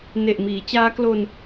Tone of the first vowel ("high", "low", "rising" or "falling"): low